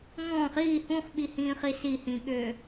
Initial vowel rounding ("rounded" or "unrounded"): rounded